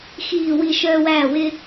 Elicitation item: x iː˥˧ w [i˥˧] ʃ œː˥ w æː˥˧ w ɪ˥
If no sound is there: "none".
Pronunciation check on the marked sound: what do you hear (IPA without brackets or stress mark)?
i˥˧